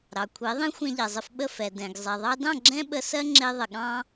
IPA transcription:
ɾɑ˩kʷʰe˩˥ðˤẽ˥ xʷɛ̃˧ʎɛ˩zˤə˧fɓə˥˩ fɛ˩dɛ̃˩ɡ zˤɛ˩ðˤɑ˧dɑ̃˥˩ ɡ͡ǁɛ̃˥ɓə˧sɜ˥ ŋ͡ǁe˧ ðˤə˩ɠɑ̃˧

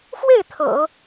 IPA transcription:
fwe˥˩ɪ̯ t̪ʰɤ̰˨˩˦

